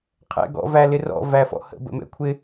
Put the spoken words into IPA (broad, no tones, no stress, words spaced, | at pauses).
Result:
qʰɛ̰ ɡɔ̰ vælɪrɔ̰ væfɔ̰hə̰ bə̰mɛ̰kʷʰɪ